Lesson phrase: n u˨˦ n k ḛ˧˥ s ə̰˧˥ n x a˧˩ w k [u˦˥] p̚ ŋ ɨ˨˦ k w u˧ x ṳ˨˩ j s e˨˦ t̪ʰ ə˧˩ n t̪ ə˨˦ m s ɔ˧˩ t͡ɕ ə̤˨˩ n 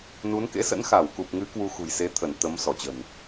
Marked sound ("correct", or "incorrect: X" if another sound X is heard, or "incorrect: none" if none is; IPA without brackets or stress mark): incorrect: u˨˩